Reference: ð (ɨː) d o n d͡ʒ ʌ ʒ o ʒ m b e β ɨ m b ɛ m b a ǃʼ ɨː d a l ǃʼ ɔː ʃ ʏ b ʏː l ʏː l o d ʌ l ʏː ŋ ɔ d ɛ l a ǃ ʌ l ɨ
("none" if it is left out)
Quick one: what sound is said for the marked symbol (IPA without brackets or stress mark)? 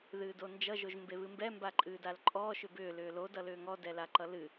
ɨː